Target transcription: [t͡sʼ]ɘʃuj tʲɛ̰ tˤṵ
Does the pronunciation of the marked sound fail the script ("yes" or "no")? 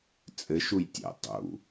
no